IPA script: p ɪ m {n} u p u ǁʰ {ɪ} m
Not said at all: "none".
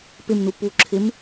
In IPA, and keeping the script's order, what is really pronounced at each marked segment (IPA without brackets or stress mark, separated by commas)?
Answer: n, ɪ